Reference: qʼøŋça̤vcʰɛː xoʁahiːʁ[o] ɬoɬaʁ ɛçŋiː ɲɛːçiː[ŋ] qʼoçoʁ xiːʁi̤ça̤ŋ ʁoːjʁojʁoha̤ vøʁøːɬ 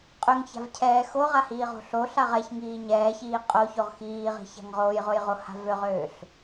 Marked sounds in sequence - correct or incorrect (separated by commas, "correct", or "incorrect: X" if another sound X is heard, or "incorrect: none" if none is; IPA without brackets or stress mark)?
incorrect: o̤, incorrect: none